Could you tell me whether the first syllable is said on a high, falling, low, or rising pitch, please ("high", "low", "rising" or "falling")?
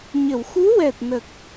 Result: low